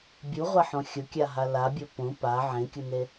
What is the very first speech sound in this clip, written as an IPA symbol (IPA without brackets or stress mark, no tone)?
bʲ